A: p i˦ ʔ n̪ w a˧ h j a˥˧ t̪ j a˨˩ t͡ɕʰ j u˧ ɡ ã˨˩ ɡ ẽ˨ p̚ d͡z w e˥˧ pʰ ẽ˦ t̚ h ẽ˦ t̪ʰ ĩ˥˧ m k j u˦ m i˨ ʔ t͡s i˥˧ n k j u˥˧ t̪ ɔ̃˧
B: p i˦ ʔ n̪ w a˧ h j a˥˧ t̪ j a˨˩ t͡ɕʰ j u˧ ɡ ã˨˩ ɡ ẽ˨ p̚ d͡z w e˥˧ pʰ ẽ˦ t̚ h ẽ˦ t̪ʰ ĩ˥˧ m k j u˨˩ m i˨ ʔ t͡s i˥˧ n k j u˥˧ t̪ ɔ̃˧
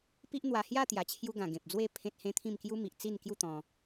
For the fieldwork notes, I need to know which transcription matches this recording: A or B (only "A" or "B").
A